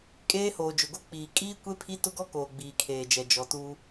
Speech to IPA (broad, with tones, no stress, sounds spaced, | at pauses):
kʼ eː˦ h oː˨ d͡ʒ ʊ˨ ɡ o˦ k͡p iː˨ kʼ iː˦ kʷ e˦ pʰ i˦ t ʊ˦ ɡ ɔ˦ k oː˨ ɡ͡b iː˨ kʰ eː˨ d͡ʒ ɛ˨ d͡ʒ ɔ˨ t uː˦